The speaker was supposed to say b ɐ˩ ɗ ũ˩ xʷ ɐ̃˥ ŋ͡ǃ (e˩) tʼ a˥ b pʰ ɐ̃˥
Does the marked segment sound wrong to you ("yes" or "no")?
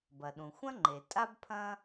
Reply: no